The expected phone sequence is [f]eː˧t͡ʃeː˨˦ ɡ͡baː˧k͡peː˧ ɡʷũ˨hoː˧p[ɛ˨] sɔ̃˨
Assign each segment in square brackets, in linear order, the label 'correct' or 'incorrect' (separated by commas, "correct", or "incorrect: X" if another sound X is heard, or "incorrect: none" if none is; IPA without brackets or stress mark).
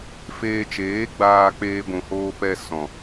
correct, incorrect: ɛ˧